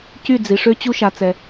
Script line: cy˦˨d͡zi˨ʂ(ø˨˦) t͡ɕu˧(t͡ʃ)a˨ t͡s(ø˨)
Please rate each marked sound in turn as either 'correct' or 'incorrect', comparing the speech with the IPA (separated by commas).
incorrect, incorrect, incorrect